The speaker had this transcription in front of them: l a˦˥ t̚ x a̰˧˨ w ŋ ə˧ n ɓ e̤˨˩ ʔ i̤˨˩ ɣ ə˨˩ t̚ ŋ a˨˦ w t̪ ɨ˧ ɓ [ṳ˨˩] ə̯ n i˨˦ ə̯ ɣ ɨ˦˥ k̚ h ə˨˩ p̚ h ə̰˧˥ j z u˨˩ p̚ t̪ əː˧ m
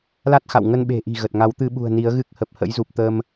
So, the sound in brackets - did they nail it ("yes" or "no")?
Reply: yes